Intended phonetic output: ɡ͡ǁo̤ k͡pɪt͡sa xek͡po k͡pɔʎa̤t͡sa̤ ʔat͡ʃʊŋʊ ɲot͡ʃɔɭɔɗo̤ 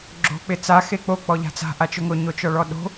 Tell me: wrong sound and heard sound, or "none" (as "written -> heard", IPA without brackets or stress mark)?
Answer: none